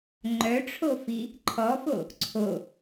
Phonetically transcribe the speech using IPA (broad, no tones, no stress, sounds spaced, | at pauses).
ŋ͡ǃ œ ʈ͡ʂʰ o f i | ǃʰ ɔ f o | ǀʰ o